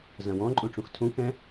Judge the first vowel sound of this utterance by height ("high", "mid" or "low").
low